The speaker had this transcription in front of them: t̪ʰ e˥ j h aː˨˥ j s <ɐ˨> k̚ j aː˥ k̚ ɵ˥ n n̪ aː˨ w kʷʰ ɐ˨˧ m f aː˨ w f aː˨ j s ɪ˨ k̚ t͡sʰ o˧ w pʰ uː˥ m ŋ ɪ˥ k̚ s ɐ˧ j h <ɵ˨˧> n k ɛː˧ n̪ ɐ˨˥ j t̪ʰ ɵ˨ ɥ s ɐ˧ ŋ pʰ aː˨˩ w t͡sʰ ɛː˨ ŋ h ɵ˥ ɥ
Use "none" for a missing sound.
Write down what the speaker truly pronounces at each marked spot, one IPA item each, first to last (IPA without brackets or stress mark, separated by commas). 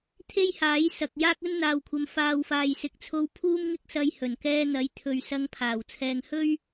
ɐ˨, ɵ˨˩